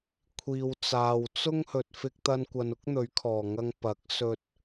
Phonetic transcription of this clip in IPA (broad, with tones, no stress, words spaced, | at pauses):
kʷʰiː˨w t͡saː˨w t͡sʊ˥ŋ hɵ˨t̚ fɪ˧k̚t̪ɐ˧nkʷɐ˨˧n ʊ˥k̚n̪ɵ˨˥ɥkʰɔː˨˩ŋɐ˧ŋ pɐ˨˥k̚sɵ˧t̚